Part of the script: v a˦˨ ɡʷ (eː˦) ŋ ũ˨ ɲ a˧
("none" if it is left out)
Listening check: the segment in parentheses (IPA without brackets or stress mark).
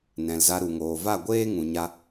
eː˦